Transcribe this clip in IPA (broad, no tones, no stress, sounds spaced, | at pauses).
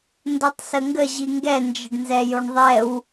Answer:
n d o tˤ s ə ŋ ɡ ə ʑ i ŋ ɡ ɛ n d͡ʒ ə ɖ n z ɛ j o ɳ ðˤ ɛ w